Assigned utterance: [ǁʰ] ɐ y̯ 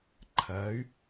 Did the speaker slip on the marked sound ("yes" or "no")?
yes